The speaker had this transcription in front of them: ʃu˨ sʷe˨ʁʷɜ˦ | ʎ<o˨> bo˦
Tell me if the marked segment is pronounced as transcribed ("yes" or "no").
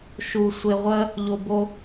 yes